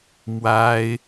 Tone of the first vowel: high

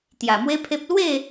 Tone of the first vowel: low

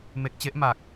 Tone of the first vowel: low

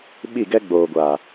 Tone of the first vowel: falling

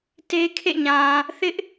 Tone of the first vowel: high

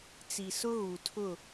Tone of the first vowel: low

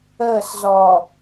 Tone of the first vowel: falling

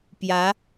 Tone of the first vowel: rising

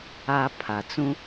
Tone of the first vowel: high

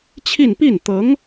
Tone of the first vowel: falling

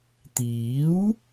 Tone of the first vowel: rising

